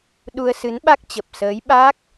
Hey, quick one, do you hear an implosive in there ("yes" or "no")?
yes